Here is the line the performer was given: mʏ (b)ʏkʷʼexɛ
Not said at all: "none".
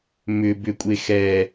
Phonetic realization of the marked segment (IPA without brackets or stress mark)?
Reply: b